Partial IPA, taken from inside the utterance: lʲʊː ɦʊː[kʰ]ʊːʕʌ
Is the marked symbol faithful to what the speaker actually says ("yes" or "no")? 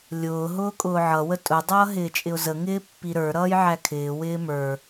no